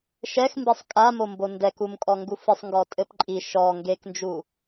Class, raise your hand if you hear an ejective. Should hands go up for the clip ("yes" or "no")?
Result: yes